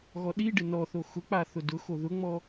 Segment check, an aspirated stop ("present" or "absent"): absent